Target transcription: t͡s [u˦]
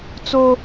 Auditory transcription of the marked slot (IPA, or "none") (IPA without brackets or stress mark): o˦